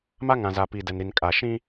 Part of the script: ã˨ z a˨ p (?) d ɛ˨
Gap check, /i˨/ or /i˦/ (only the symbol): i˨